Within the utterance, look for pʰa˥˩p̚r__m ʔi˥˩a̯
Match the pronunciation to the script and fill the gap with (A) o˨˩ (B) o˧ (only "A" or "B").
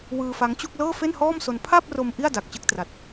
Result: B